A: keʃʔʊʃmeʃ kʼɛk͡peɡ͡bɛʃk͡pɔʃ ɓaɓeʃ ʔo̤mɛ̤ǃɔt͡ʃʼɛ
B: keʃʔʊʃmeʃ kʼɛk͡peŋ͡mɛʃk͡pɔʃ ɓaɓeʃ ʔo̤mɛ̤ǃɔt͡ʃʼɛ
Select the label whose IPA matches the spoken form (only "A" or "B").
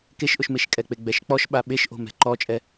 A